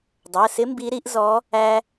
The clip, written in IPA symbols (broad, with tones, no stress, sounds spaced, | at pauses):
dˤ ɜ˩˧˩ s ɪ˧˥ m b i˧˥ ɾ i˧˥ ʔ z ɔ˧˥ | æ˥